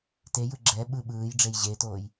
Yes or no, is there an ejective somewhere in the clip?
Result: no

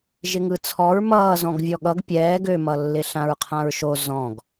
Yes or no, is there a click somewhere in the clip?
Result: no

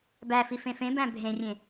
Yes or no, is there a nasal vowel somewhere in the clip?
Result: yes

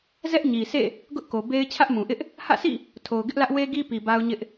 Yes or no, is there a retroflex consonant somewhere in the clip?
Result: no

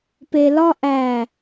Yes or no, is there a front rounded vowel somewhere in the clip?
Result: no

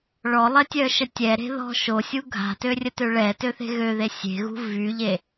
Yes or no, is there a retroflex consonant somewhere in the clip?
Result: yes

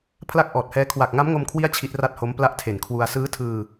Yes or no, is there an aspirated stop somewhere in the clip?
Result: yes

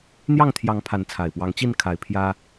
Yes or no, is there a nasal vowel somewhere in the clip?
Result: no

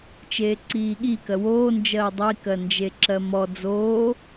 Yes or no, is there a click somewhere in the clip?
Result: yes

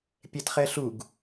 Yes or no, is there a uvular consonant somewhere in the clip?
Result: yes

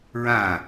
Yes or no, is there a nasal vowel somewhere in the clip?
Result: yes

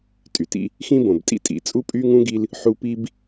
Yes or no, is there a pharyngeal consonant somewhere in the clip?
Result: yes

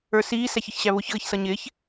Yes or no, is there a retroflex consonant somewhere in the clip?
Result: no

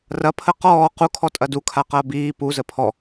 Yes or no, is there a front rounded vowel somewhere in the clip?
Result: no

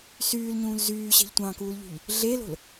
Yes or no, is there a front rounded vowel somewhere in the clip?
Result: yes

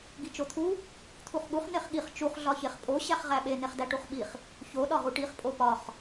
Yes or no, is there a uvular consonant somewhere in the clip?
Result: yes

